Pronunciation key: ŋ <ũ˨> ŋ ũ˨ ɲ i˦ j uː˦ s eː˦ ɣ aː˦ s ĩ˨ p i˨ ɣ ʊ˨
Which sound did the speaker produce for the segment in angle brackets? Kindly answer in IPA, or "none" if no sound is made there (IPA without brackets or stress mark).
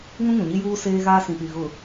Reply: ũ˦